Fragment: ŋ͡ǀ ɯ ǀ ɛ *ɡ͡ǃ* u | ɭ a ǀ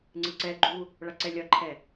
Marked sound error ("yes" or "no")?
no